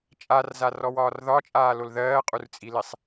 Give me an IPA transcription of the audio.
t͡ʃʼ a r z a r ɔ w ɒː r ð ɒ t͡ʃʼ aː l o l ð ɜː qʼ u r t͡sʼ i l i sˤ

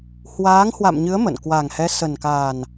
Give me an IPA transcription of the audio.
h w aː˨˦ ŋ h w a̰˧˨ m ɲ ɨ˨˦ ə̯ m ə̰˧˨ n k w a˨˩ ŋ h ɛ˨˦ s ə˨˩ n k a˨˩ n

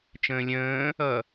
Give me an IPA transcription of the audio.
t͡ʃ ə̃ː lʲ ə̃ː | ʌ

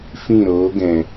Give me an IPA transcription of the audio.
f ĩ˦˨ ɾ oː˨˦ ɡ ɛ̃˨

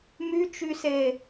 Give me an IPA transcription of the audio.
m y t͡ʃ y s e

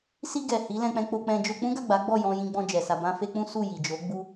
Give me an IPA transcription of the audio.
s i˧ ɡ ɛ˨ h i˨˦ l ɛ̃˧ k͡p ɛ̃˧ k͡p o˧ k͡p ɛ̃˧ d͡ʒ o˧ k͡p ũ˦ ɡ a˦˨ ɡ͡b a˨˦ ɡ͡b ɔ˦˨ j ɔ̃˧ j ĩ˧ ɡ͡b ɔ̃˧ d͡ʒ ɛ˨ s a˧ b ã˦ f e˦ k͡p ũ˦ s u˦˨ j i˨ d͡ʒ o˨˦ ɡ͡b u˦

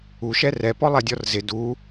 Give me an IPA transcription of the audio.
u ʃ ɛ r ɛ p ɔ lˠ ɛ dʲ ɔ r z ɪ d u

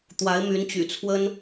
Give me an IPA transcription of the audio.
t̪ w a˧˥ ɪ̯ m y˧˥ n t͡ɕ y̰˨˩ t͡sʰ w ə˥ n

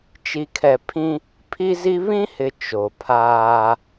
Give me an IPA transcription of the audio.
t͡ʃ i˨ kʰ ɛ˨ pʰ ĩ˦ | pʰ i˦ z i˦ β ĩ˦ h ɪ˨ t͡ʃ o˨ pʰ aː˦

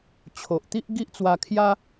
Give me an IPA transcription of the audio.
t͡ɕʰ o˨ ʔ t̪ i˦ ʔ ɡ i˦ ʔ t͡s w a˧ kʰ j a˦

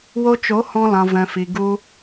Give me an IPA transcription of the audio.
w o˧ t͡ʃ o˨˦ h ɔ̃˧ l ã˨ v ɛ̃˨ f i˨ ɡ u˧

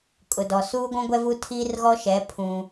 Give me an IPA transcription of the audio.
kʼ ʊ˨ d ɔ˨ s uː˦ ɡʷ ũ˦ ɡʷ ɛ˦ v u˦ tʰ iː˦ r ɣ ɔ˦ ʃ ɛ˨˦ pʰ ũ˦

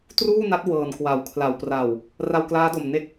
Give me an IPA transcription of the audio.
t r uː˥˩ n a˦˥ t̚ w ɤː˨˩ n k w a˩˦ w kʰ l a˩˦ w p r a˨˩ w | r a˧ w k l aː˦˥ d o˨˩ m n e˦˥ k̚

